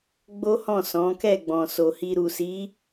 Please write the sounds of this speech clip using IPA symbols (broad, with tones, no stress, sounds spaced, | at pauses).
ɡ͡b o˦ h ɔ̃˦˨ s ɔ̃˨˦ k ɛ˦˨ ɡ͡b ɔ̃˨ s o˨ h i˧ ɾ u˨ s i˨˦